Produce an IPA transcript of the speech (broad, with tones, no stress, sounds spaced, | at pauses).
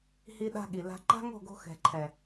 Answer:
h i˦ ɗ a̤˦ ɠ i˨ l a̤˦ ǃ a̤˦ ŋ o̤˦˨ ɡ o̤˧ x ɛ̤˨ ǃʰ ɛ˨